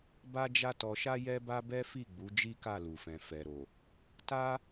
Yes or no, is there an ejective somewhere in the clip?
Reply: no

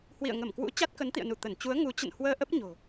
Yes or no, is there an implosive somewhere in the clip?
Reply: no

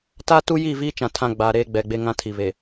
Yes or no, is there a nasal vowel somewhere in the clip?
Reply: yes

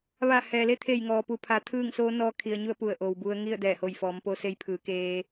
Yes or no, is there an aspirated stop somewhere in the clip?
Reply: yes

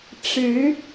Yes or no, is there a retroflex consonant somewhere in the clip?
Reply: yes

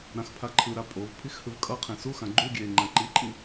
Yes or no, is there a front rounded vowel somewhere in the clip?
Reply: no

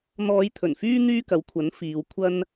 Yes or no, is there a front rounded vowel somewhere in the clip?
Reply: yes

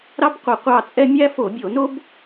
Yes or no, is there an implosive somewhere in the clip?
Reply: no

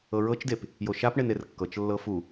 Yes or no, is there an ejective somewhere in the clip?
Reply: no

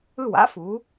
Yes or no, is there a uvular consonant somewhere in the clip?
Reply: no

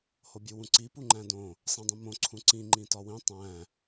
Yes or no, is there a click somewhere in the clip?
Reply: yes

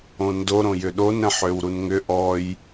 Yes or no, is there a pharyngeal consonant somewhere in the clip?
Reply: yes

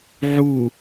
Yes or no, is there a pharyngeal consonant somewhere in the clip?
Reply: yes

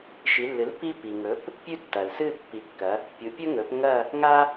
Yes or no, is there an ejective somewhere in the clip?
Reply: no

